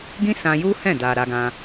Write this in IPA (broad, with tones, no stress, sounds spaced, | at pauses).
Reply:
ɡ ĩ˦ s ã˧ j u˦ h ɛ̃˦˨ d a˨ ɾ a˧ ɡ ã˧